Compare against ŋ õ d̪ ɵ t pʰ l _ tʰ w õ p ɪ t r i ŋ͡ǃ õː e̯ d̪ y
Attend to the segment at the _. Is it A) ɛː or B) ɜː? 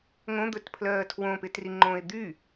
B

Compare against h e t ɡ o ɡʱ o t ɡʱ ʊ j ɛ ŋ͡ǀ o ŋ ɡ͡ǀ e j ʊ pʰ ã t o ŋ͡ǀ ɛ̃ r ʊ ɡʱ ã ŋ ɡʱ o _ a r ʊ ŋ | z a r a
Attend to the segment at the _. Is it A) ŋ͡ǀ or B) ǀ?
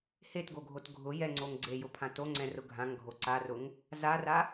B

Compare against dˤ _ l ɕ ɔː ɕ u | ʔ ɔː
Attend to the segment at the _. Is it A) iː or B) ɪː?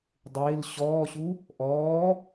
B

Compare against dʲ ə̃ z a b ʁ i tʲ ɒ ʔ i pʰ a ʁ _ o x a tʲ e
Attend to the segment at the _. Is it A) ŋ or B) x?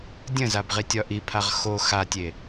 B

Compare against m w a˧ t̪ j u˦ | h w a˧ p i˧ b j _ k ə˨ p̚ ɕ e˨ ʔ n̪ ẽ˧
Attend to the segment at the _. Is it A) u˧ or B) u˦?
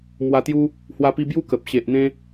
B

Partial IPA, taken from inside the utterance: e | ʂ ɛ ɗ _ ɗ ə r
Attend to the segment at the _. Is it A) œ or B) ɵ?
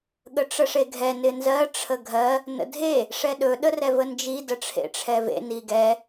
B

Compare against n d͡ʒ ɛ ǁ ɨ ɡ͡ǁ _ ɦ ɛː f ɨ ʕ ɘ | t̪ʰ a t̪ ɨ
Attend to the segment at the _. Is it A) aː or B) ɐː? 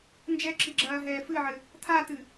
B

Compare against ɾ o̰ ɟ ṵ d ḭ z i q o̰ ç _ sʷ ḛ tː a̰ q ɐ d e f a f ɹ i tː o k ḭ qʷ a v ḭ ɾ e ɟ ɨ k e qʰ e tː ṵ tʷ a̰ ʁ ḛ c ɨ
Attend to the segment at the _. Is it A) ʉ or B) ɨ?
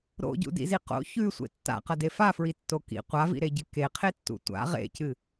A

